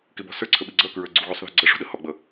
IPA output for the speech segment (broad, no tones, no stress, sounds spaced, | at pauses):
k ɪ b ɔ̤ s ə˞ ǀʰ ə ɓ i ɡ͡ǀ ʌ k ɹ ə˞ ɡ͡ǀ u ɣ u sˤ ð ɔ̤ ɡ͡ǀ ʌ ʂ ṳ ɗ ə h ɔ ɡ͡b ʌ